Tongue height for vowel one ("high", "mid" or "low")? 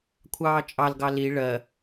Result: low